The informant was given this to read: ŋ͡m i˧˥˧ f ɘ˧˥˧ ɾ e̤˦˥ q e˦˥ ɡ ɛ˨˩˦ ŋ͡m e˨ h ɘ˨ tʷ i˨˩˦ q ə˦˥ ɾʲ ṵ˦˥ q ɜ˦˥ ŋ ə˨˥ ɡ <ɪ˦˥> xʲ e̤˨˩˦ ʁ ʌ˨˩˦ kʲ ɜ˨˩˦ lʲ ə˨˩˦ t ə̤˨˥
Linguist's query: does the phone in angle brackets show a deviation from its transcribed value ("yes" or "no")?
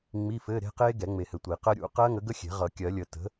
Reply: yes